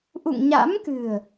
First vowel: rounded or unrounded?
rounded